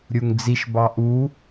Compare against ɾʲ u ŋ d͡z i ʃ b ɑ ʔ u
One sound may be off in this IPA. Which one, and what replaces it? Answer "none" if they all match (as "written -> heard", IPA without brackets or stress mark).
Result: none